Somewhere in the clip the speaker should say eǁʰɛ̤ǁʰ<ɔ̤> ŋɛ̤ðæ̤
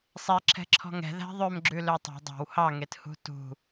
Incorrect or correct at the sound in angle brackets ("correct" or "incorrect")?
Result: correct